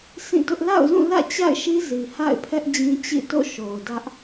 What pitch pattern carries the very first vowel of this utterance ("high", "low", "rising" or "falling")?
falling